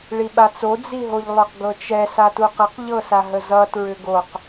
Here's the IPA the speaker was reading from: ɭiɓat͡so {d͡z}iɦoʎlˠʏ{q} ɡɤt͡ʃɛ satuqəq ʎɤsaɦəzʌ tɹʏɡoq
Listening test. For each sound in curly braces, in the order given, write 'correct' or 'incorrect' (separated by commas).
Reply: correct, correct